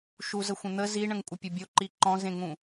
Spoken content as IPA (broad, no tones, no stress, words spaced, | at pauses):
ʃuz əxʷə̃n̪ə ziɳə̃ŋ kʷʼəpʲəbʲoǃi ǃɔ̃zẽŋũ